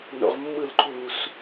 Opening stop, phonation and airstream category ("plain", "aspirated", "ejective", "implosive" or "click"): click